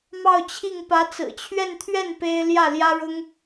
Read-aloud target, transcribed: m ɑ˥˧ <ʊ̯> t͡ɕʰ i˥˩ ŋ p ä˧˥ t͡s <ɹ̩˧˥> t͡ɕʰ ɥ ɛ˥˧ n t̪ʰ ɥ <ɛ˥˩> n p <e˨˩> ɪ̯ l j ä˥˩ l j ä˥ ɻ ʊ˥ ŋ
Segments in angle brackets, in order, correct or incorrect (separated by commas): correct, incorrect, correct, incorrect